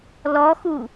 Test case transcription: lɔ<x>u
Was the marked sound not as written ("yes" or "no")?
no